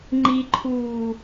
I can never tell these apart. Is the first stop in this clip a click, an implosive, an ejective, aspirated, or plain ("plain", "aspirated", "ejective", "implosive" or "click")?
click